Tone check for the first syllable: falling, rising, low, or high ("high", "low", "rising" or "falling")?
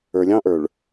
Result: low